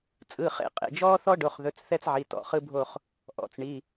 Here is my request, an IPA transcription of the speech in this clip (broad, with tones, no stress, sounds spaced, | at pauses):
t͡sʼ ɯː˩˧˩ χ ḛ˦˨ qʼ ḛ˩˧˩ d͡ʒ ɔː˦ θ ɔ˦ ɖ o˩˧˩ χ ð ɵ˩˧˩ t͡s θ ɛ˦ t͡s ʕ i˩˧˩ t ɔ̰˩˧˩ χ ɯ˦ bʱ o˦˨ χ | ʔ ɔ̰˩˧˩ t͡s ɳ i˩˧˩